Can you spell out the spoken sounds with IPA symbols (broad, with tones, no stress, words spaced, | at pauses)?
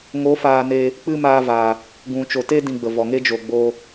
ŋo˨˦ faː˧ne˧ | k͡pɨ˦maː˧va˨ | ɡũ˨t͡ʃo˨ te˦ dĩ˧ɡ͡bə˨vɔ˨ŋe˦ d͡ʒo˨ɡ͡bo˧